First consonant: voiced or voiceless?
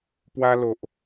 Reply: voiceless